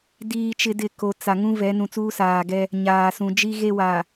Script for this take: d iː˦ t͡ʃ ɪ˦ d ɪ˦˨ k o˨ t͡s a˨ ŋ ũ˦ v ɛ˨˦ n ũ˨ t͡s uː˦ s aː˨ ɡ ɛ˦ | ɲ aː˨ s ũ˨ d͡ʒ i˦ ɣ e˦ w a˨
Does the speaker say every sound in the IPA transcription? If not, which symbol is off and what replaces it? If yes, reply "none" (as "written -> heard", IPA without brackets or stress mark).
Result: none